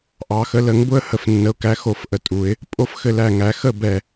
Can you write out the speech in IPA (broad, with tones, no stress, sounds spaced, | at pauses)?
ʔ ɑ˨˩˦ x ə˩˥ l ə˨˩˦ ŋ b ʊ˦ ə̯ h ə˧˩ f nː ə˩˥ ʊ̯ k æ˩˥ x o˨˩˦ f ʔ ə˧˩ tʼ u˨˩˦ ɪ̯ | pʼ o˥˨ f x ɘ˧˩ l æ˧˩ ŋ æ˨˩˦ x ə˥˨ b ɛ˧˩